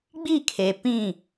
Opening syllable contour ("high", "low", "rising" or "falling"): falling